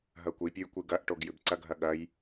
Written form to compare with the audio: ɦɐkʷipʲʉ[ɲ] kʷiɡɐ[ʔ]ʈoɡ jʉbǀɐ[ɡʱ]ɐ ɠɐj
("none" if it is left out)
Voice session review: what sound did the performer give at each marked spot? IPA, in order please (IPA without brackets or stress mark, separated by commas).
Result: j, ʔ, ɡʱ